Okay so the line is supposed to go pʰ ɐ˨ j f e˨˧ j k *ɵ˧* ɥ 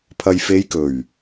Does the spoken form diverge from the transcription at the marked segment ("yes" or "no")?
yes